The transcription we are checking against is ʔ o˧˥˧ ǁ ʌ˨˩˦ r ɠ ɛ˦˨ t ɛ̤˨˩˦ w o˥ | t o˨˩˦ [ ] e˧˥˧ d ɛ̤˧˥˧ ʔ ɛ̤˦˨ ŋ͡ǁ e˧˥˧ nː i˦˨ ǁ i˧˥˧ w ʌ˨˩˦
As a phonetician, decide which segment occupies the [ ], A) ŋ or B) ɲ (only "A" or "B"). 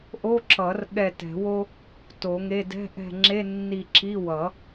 A